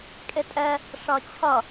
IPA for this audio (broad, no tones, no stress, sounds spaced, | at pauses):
kʼ e tʼ ɛ | ʂ ʌ t͡ɕʰ ʌ